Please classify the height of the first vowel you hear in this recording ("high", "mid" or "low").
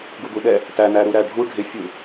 high